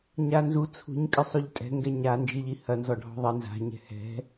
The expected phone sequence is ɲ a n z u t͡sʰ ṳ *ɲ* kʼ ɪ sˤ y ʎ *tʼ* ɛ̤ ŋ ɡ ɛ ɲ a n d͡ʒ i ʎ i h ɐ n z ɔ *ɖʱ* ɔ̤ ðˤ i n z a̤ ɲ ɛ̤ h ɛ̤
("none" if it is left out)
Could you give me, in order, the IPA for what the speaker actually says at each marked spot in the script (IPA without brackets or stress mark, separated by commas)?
ɲ, tʼ, ɖʱ